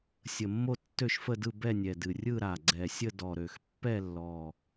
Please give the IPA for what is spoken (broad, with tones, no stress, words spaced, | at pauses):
sʲə˨˩mːo˥˧ tːø˥˧ʃfə˥˧dɯ˥˧ bɛ˥˧nʲɛ˨˩dɨ˨˩ rʲɯ˥˧ɾa˨˩ ɡ͡ǀɛ˨˩sʲə˥˧dɔ˨˩ɾø˨˩x pːɛ˥˧lːɔ˨˩